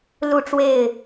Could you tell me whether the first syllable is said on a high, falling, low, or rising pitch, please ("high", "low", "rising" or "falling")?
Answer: falling